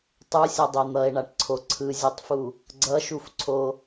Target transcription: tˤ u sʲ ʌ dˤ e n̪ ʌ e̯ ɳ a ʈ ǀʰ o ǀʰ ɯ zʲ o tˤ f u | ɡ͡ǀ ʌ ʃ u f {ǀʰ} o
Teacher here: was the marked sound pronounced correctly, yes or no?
yes